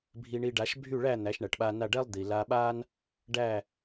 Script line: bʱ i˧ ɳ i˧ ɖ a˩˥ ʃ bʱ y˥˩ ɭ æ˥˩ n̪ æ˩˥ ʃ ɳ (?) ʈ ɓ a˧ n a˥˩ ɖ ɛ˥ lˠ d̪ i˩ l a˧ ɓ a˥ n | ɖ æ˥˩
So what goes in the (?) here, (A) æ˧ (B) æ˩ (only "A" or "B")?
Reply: B